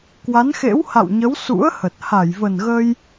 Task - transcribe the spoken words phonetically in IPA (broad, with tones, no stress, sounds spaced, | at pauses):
k w a˨˦ n x ḛ˧˥ w h a̰˧˨ w ɲ ə˨˦ w s ṵ˧˥ ə̯ h ə˨˩ t̚ h a˧˩ j v ə˨˩ n ɣ ə˧ j